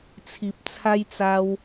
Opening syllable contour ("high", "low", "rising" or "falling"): low